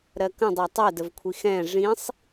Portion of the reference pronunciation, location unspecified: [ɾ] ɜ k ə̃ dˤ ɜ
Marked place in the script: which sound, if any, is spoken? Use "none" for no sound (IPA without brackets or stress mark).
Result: ɾ